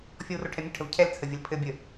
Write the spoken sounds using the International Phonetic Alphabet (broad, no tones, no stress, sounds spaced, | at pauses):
fʲ ɔ w r o ʈʰ ɛ mʲ ə ʈʰ ə v cʰ ɛ l t͡sʰ ə vʲ ə l pʰ ɘ bʲ ə